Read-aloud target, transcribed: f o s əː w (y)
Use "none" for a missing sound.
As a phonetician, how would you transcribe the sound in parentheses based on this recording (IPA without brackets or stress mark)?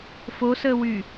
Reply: y